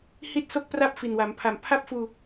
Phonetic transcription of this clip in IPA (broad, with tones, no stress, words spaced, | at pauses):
hi˥˩t̚so˥˩k̚ pra˥˩p̚fi˨˩nwa˩˦mpʰa˨˩m pʰa˥˩p̚fuː˧